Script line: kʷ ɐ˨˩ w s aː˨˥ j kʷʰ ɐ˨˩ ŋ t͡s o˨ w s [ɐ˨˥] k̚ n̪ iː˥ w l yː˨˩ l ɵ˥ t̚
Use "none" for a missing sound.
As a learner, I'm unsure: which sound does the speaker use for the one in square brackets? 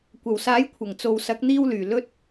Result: ɐ˨˥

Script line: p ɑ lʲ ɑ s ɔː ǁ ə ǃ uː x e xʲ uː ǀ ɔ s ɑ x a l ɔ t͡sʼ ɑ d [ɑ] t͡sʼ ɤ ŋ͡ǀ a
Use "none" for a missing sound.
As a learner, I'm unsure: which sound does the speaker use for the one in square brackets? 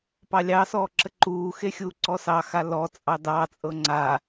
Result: ɑ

